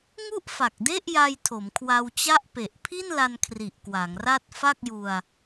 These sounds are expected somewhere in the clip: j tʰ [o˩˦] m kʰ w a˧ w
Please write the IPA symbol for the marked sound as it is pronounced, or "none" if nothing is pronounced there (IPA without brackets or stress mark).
o˩˦